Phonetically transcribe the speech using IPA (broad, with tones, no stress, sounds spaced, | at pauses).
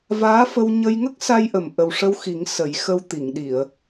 v aː˧˥ f ə˧ w ɲ ə˧ j ŋ ə˦˥ k̚ s a˧ j ʔ ə˨˩ m ʔ ə˨˩ w ʂ ə˧ w x i˨˩˦ ŋ s ə˨˩˦ j x ə˧ w t̪ i˨˩˨ ŋ ɗ i˨˩˨ ə̯